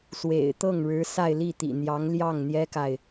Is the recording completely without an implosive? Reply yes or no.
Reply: yes